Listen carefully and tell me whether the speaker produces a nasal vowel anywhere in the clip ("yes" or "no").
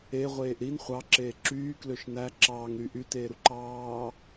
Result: no